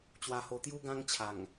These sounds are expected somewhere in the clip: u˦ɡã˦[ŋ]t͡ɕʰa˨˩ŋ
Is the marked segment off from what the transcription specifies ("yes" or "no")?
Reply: no